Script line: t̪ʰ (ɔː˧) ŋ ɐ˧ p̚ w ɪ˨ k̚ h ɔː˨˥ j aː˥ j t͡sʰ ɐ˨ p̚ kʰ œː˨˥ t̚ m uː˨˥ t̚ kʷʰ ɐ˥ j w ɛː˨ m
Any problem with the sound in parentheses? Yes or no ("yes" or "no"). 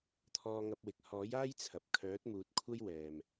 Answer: no